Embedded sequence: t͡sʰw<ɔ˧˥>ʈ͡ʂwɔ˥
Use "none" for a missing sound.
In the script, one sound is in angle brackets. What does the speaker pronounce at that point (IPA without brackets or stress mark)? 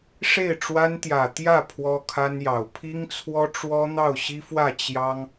ɔ˥